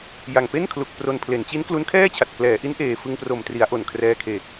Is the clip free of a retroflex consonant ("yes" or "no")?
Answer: yes